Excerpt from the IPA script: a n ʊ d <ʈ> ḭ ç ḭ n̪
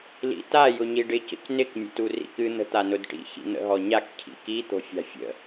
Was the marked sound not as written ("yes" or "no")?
no